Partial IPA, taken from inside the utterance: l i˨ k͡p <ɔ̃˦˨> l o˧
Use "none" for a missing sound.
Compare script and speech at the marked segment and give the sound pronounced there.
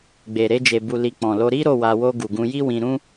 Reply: ɔ̃˨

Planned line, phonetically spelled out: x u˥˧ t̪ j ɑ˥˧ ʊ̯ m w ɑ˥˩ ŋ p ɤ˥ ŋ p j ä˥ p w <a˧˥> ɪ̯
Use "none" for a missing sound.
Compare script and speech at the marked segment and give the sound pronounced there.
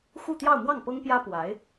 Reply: a˧˥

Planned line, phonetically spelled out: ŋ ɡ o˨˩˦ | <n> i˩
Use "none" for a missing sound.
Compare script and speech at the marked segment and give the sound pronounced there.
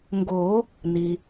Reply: n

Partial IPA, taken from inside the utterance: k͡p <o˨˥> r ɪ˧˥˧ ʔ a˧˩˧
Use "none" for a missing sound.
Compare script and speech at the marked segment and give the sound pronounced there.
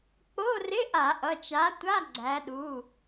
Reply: o˧˥˧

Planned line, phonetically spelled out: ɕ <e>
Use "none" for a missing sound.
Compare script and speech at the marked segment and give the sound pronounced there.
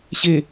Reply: e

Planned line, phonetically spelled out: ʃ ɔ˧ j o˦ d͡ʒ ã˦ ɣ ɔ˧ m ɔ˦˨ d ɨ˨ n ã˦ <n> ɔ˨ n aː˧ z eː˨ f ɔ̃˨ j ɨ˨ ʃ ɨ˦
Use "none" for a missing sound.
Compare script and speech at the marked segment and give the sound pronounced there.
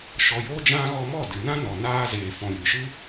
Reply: n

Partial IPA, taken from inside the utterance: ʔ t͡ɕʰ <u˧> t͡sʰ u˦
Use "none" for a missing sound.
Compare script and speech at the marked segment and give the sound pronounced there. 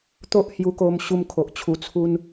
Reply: u˧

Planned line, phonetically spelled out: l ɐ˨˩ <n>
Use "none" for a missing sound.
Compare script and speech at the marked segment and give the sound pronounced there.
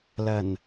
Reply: n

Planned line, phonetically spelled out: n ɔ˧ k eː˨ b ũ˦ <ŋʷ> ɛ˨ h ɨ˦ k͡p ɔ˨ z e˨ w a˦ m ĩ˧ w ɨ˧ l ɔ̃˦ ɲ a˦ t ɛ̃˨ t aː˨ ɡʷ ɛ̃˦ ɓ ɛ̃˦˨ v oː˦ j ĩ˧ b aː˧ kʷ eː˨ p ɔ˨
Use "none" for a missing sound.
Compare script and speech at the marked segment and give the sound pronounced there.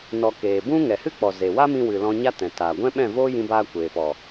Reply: ŋ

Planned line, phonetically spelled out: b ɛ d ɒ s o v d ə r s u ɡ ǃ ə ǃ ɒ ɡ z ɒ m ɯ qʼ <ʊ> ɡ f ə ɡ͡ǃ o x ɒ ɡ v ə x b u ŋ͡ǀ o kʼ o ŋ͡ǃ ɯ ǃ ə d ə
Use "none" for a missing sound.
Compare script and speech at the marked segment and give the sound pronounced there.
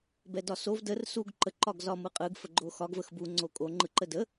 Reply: ɯ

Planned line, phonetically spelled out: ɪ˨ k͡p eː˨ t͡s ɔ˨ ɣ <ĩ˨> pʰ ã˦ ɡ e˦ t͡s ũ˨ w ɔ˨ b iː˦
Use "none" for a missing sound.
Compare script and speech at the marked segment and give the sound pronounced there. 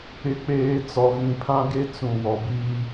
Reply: ĩ˨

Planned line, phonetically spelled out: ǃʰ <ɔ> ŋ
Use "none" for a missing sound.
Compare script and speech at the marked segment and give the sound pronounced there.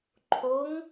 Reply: o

